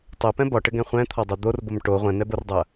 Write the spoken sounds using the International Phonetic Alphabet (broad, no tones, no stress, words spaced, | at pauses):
tˤɛpɛ̃ bɒʈɘɡɛ̃ χʷɛ̃t̪ʰɒdˤo d̪orbom ʈo ʁʷɛ̃nɛbordˤɐ